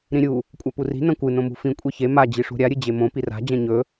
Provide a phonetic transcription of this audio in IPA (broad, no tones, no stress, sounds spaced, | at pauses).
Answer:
ɾ ĩ ɾʲ u | kʷʼ a p u r i̤ n ɐ̃ kʷ ɨ n õ m ṳ f ĩ kʷʼ e ç e m a d͡ʑ i ʂ ṳ ɾʲ a ɾʲ ɨ d͡ʑ e m õ p i r a̤ d͡ʑ ɐ̃ ɲ ɵ